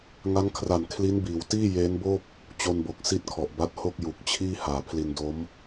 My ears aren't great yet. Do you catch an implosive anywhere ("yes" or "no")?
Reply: no